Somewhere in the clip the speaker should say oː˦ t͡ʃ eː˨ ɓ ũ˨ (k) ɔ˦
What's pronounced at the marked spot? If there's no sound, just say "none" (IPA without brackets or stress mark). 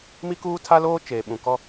k